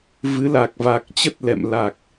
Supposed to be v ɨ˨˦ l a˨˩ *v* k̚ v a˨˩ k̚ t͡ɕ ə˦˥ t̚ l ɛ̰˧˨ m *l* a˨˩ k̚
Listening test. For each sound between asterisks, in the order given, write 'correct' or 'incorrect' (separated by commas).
incorrect, correct